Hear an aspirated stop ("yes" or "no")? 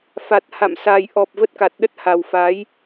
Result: no